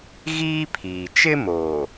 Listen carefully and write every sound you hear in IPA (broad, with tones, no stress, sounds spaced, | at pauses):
ɣ iː˦ pʰ iː˨ t͡ʃ ɪ˦ m oː˨